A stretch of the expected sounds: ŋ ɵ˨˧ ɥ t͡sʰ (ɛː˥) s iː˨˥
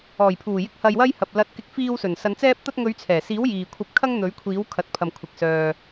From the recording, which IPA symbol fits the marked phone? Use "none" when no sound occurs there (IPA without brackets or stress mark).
ɛː˨˩